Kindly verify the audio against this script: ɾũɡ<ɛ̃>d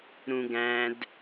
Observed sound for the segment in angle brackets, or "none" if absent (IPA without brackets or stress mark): æ̃